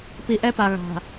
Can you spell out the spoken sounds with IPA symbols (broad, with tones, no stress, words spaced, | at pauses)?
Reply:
pi˨ʔɛ˦pa˨ ɣa̤˨